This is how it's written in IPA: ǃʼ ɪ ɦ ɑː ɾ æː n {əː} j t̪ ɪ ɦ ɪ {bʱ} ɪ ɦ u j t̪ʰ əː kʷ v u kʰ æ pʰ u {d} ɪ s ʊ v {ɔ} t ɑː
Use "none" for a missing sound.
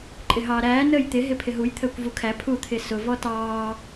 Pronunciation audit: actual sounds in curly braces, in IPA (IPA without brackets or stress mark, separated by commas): əː, pʰ, t̪ʰ, ɔ